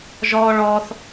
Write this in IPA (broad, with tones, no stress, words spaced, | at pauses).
ʒɔː˦ɭɔː˦θ